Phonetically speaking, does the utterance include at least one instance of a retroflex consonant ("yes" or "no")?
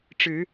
yes